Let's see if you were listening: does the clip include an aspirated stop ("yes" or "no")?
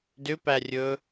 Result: no